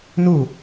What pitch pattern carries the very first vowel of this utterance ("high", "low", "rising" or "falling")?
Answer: falling